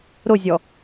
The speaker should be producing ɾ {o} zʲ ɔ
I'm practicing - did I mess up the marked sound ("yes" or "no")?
no